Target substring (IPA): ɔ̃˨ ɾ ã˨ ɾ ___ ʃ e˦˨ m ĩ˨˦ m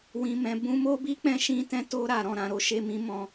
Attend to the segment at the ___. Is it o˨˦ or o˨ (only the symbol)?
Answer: o˨˦